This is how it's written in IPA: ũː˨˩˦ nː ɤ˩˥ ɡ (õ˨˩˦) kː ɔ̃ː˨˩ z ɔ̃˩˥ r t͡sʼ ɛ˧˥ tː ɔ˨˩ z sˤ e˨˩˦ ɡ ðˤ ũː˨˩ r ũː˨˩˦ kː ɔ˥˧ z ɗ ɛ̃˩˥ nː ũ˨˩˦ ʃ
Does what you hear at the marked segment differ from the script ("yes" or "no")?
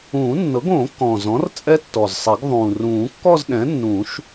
yes